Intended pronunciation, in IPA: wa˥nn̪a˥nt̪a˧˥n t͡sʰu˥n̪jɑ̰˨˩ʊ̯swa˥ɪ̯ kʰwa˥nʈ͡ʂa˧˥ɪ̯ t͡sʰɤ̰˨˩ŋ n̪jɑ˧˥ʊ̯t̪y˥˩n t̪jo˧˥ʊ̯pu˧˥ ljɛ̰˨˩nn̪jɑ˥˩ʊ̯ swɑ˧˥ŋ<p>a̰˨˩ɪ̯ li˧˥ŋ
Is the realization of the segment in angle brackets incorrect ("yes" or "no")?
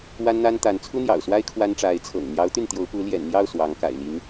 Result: yes